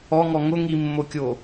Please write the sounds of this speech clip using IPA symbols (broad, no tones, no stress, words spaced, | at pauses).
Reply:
ɔŋɔ ŋʊ ŋimːokʲo